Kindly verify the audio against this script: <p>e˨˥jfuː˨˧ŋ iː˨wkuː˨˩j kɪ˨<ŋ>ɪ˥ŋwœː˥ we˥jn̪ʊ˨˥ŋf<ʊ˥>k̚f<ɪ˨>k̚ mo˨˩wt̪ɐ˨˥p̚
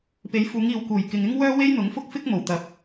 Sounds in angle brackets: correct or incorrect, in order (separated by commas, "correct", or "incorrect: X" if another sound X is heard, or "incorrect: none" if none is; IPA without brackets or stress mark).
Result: correct, correct, correct, incorrect: ɪ˥